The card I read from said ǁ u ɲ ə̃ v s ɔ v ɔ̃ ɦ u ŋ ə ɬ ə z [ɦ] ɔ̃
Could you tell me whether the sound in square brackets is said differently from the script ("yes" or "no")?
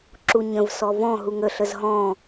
no